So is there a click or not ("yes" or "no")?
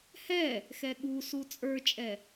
no